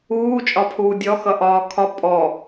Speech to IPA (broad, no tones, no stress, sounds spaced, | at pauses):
uː t͡ʃʼ ɒ pʰ uː dʲ ɔ x ʌ ʔ ɒː kʰ ɒ pʼ ɔ